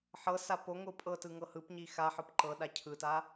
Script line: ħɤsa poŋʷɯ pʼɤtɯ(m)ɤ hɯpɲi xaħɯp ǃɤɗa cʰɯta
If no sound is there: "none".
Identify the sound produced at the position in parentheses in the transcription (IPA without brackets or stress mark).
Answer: ŋ